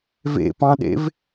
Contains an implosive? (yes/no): yes